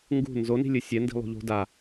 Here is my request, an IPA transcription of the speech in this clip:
ŋɡṳ nzoni̤ lʲɨsʲɛ ndi̤lˠṳʎo̤ da

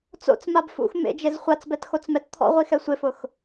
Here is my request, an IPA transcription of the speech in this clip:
t͡so̰t͡s mabfṵx mḛd͡ʒez χʷat͡sbɛtxot͡smɛt t̪ʰɔ̰ʁʷixɛ sʷɪfʊx

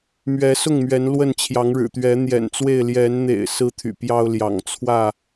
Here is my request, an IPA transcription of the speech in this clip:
mɥɛ˨˦sʊ˥˨ŋ mɥɛ˨˦nlwə˥˨n t͡ɕʰjɑ˨˦ŋɻɻ̩˨˩t̪ɥɛ˨˦ n̪jɛ̰˨˩nt͡swe˥˨ɪ̯ ljɛ˨˦nn̪ḛ˨˩ɪ̯ sɹ̩˦t̪ʰy̰˨˩pjɑ˦ʊ̯ljɑ̰˨˩ŋ t͡sʰwä˥˨

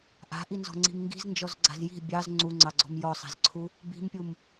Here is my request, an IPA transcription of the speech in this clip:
ʔa̤ʔinzɔ̤ŋ͡ǀi̤m ŋɡi̤znd͡ʒɔzɡ͡ǀa̤z ji̤ bʲɑz ŋ͡ǀuŋ͡ǀɑɡ͡ǀɔ̤m jɔsˤa̤zǀʰu | bi̤mpʲum

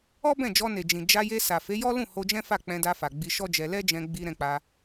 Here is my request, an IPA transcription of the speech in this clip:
ɔ˦bɛ̃˦˨d͡ʒɔ˧ ne˨d͡ʒĩ˨ d͡ʒa˧je˧sa˨ fe˨˦jɔ˦lũ˦˨ ho˧d͡ʒɛ̃˦fa˦˨ k͡pɛ̃˧da˧fa˨ ɡ͡bi˧ʃɔ˦d͡ʒɛ˧ lɛ˦d͡ʒɛ̃˧ɡ͡bi˧ ɾɛ̃˧k͡pa˧

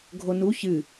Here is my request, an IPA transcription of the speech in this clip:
ɡʱonu çɨ

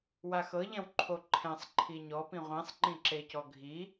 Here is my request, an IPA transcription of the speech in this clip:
waxɤʎɛ̃w ǃʰoǃʰɛ̃sˤ ǃʰiɲɔpĩ ʁʷĩsˤŋ͡ǃĩǁecɔ ɡʱi

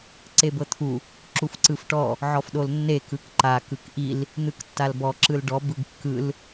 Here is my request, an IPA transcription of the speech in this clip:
ǀebɤt̪ʰu | ǁufǀɯfʈɔ | ʕɔfɗolnːe kɯkǃa kɯkʔil | n̪ɯktːalbɔ ǁɯlɖɔ bɯɡkːɯl

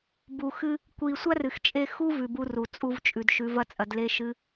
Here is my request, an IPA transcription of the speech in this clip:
bu˨xɨ˧ | kʷi˨ sʷa˦rɨ˨xt͡ʃʼe˧ xu˦ vʉ˧bu˦ru˨ t͡sʼu˧vt͡ʃʼʉ˨d ʃʉ˨˦vɐ˦t͡sʼɐ˧dle˦ ʃɨ˦

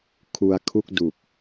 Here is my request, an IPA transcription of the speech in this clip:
kʰu˧a̯kʰu˥˩k̚du˨˩k̚

